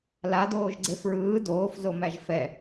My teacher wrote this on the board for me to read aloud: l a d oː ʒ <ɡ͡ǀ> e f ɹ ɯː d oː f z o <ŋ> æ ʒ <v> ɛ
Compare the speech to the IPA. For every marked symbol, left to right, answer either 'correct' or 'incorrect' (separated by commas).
correct, incorrect, incorrect